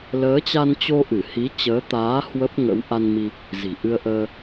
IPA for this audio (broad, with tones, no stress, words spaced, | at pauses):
ləː˨˦t͡ɕa˧nt͡ɕo˧ ʔɨ˧˩hi˨˦ t͡ɕəː˨˦t̪aː˨˦ hwə˦˥p̚ŋə̰˧˥w ʔa˧nmi˧ | zi̤˨˩ʔɨ˧ə̯ʔəː˧